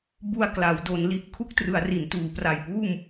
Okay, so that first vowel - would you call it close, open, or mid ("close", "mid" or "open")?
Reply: close